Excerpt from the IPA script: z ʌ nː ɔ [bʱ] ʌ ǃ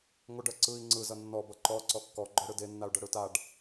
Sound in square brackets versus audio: incorrect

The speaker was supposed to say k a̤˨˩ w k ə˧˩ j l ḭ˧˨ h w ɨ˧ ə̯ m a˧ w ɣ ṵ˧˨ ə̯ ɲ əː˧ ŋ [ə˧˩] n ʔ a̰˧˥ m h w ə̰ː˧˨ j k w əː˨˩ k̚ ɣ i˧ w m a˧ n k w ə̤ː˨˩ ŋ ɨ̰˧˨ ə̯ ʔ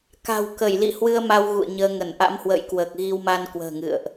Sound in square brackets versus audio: correct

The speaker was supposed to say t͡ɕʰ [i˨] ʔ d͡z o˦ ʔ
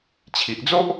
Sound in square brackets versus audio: correct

